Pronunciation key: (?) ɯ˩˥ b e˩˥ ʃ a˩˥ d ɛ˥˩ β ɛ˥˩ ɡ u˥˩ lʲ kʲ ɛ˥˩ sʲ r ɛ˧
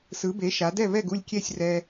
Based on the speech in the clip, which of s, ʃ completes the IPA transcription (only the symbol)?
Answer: s